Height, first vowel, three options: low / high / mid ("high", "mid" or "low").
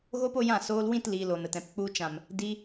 mid